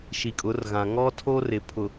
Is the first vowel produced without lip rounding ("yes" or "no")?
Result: yes